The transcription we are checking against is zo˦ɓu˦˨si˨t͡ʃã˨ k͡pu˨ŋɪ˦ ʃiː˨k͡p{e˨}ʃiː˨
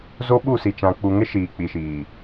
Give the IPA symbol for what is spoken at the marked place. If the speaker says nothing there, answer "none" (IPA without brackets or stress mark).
i˨